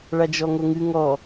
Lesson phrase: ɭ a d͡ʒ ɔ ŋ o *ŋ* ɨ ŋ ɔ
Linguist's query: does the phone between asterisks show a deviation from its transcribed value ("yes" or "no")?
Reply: no